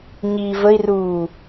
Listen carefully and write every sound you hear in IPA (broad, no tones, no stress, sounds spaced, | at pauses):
ɲ i v ə i̯ r uː